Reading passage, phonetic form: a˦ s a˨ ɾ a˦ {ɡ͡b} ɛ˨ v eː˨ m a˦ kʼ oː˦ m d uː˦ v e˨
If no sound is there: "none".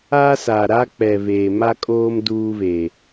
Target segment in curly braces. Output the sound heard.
k͡p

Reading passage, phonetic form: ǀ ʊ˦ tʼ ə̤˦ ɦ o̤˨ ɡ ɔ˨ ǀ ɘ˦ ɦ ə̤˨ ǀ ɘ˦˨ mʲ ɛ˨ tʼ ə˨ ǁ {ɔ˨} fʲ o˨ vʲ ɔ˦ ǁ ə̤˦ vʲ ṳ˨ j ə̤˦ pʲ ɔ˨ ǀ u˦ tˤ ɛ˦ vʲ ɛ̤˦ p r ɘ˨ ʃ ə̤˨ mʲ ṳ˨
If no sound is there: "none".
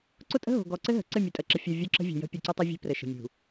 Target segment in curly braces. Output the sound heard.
ə˨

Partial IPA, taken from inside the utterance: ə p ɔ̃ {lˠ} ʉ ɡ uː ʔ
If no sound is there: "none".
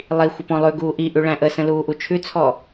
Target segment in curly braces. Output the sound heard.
lˠ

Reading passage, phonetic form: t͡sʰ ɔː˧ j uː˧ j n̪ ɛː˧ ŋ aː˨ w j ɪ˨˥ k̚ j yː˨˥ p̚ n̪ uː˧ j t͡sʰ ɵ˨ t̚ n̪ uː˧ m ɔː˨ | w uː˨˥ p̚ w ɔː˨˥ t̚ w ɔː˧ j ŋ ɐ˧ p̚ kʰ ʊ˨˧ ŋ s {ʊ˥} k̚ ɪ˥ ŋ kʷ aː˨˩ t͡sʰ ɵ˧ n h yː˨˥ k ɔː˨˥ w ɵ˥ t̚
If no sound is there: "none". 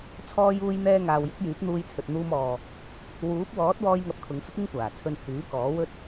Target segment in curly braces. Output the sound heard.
ʊ˥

